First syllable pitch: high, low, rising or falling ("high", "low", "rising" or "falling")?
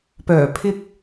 low